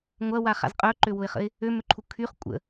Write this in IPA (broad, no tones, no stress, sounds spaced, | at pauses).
ŋʷ ɐ w a χ a̰ z qʼ œ ǃ ø w ʊ ɪ̯ χ ə̰ ɪ̯ | ø m ʏ ǃʰ u kʰ y χ kʷʼ ə̰